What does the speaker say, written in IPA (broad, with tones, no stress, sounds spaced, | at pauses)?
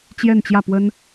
t͡ɕ j ɛ˥˧ n t͡ɕ j ä˥˩ p w ə˥ n